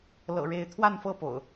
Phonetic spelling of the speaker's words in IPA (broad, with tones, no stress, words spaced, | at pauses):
lɤ̰˨˩ɻe˨˦ɪ̯t̪ʰwa˥˨nfɤ˥˨ po̰˨˩ʊ̯